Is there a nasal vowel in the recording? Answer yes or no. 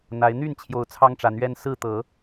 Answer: no